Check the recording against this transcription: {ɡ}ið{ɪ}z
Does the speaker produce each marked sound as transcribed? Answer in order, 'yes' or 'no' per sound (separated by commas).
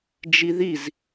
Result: no, no